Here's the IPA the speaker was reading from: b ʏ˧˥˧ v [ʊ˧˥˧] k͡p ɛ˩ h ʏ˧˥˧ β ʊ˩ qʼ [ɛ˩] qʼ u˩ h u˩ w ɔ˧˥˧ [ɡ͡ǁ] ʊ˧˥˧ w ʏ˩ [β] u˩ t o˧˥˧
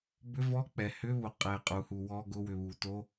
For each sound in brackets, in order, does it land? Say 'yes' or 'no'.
no, yes, no, yes

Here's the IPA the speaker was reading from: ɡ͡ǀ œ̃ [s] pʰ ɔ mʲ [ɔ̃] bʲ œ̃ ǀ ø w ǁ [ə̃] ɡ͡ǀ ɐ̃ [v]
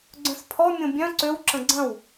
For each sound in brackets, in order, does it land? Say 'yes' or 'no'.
yes, no, yes, no

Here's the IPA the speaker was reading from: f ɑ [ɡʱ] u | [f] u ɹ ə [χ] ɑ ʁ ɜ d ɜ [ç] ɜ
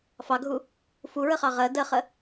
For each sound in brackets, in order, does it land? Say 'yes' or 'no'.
yes, yes, yes, no

